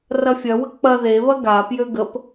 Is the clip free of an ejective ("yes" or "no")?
yes